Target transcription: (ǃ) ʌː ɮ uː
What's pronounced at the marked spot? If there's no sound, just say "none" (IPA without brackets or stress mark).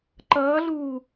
ǃ